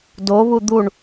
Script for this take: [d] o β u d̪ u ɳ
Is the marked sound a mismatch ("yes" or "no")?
no